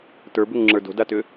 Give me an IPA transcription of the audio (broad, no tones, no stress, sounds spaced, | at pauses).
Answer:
t ə˞ b ʏ ŋ ŋ͡ǁ ə˞ d o̤ d a t ʏ